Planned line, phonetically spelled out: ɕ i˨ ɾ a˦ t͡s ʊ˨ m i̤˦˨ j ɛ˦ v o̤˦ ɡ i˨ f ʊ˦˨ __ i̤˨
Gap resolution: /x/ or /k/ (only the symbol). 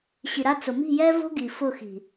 x